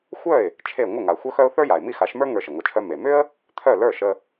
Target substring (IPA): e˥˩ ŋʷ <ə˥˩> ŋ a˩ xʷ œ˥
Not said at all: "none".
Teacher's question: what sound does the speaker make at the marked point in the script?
ə˥˩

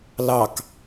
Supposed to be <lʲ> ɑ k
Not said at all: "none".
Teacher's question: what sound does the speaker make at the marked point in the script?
l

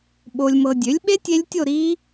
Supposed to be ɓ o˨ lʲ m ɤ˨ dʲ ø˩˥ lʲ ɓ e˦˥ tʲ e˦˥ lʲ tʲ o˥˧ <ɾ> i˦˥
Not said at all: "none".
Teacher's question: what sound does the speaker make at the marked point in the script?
ɾ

